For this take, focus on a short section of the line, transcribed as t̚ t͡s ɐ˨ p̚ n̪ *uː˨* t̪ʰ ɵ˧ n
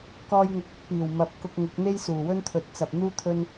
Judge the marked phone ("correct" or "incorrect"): incorrect